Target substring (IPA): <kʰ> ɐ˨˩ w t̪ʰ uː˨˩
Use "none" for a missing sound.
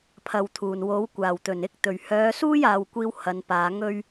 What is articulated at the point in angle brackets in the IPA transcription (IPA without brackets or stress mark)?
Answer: pʰ